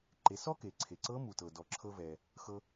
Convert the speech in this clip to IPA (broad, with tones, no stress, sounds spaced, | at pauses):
ǃ e˩˧ s ɔ˥ k e˩ ǀʰ e˩ ǀ ɤ˧˥ m u˩ t ɤ˩ d ɔ˩ ǁʰ ɤ˧ v ɛ˩ | x ɤ˧